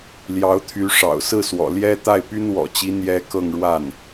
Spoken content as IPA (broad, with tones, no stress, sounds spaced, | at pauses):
l j ɑ˧˥ ʊ̯ t̪ʰ y˧˥ ʂ ɑ̰˨˩ ʊ̯ s ɹ̩˥˩ s w ɔ̰˨˩ l j ɛ˥ t̪ a˥˩ ɪ̯ p y˥ n w ɔ̰˨˩ t͡ɕ i˧˥ n̪ j ɛ˧˥ k ɤ˥˧ ŋ ɻ w a˥˩ n